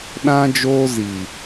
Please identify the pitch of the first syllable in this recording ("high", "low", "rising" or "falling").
high